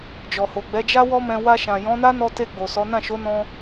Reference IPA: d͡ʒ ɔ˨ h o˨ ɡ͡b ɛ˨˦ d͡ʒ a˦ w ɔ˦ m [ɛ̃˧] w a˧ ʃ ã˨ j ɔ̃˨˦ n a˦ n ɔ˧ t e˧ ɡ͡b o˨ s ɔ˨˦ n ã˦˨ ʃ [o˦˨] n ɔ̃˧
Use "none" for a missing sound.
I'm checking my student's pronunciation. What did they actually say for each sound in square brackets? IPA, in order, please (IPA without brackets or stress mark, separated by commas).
ɛ̃˧, o˨˦